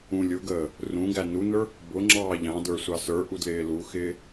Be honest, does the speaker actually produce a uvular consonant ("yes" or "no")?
no